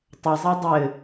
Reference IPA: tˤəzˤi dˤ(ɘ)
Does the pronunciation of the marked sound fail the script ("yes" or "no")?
no